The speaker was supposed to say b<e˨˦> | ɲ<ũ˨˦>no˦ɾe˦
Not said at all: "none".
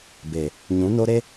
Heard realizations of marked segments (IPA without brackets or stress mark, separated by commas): e˨, ũ˨˦